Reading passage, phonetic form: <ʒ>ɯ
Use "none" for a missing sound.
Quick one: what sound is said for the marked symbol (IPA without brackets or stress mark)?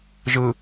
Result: ʒ